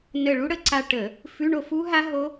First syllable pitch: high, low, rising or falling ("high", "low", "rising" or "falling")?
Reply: falling